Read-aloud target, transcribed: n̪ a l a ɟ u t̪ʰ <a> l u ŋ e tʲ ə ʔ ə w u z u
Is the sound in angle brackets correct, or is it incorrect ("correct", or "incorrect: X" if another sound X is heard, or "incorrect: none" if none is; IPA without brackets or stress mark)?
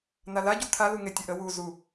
correct